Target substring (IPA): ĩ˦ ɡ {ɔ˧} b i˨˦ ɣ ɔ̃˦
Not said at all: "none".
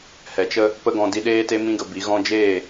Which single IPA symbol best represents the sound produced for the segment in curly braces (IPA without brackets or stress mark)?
ə˧